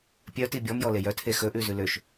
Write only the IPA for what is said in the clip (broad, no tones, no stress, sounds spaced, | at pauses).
pʲ œ t i bʲ ɔ m j ɔ l e j œ tʰ e x ɵ ʔ ʉ z ʉ l ø ʃ